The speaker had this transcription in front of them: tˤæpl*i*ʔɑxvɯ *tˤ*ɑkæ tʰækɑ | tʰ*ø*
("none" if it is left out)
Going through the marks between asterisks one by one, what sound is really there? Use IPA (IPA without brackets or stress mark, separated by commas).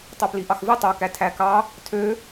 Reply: i, tˤ, ø